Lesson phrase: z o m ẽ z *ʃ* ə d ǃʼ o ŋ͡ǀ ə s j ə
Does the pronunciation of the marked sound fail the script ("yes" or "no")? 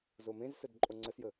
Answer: yes